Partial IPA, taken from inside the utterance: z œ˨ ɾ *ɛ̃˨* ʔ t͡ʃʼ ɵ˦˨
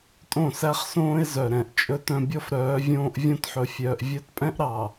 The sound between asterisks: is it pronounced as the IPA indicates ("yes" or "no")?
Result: yes